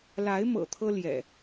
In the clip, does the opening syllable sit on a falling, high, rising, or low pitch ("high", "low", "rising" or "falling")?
rising